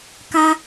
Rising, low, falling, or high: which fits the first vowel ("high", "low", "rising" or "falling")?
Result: high